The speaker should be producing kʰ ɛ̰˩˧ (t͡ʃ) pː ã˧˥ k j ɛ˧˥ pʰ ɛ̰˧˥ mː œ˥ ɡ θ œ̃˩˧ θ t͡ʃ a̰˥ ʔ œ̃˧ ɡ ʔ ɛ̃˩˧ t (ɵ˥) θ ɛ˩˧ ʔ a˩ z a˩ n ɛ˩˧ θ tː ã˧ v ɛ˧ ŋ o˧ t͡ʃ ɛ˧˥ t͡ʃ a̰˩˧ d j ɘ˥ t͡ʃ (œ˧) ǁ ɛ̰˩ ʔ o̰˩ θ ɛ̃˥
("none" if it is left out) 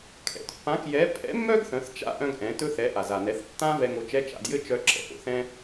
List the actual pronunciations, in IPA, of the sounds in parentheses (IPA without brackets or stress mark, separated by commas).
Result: t, ɵ˧, œ˧